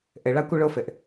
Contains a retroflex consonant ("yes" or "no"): yes